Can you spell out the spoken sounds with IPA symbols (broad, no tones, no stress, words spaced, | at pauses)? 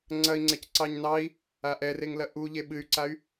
ŋ͡ǀɐi̯ŋ͡ǀɛc ǀɑɲnɑi̯ | aʔɛreŋlɐ ʔu ʎeɓɨy̯ǀay̯